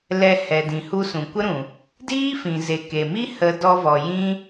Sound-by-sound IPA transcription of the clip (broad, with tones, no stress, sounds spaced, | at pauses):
l ɛ˧ h ɛ˨ d ĩ˨ h u˧ s ũ˨ kʷ ə˦ ɾ ũ˨ | d iː˦ f ĩ˨ z e˨ k e˨ m i˦ h ə˧ d ɔ˧ v ɔ˨ j ĩ˦